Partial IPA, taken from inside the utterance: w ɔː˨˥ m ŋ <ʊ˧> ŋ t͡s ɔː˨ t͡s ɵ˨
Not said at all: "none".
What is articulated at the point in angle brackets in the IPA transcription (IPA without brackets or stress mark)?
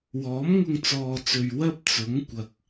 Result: ʊ˧